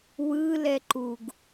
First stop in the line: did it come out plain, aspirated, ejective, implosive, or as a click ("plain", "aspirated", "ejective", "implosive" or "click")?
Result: click